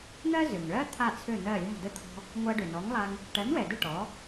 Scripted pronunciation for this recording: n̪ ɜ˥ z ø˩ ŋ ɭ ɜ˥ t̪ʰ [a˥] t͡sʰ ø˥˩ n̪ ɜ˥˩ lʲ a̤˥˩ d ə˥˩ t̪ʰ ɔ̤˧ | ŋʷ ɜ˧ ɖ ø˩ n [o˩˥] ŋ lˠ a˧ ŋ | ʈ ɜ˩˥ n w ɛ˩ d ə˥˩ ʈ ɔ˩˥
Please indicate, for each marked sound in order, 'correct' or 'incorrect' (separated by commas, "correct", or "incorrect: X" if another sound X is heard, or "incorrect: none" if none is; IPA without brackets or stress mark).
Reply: incorrect: a˥˩, incorrect: ɔ˩˥